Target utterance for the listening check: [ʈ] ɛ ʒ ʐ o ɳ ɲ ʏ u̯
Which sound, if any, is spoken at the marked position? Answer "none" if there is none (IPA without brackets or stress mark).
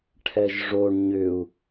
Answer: ʈʰ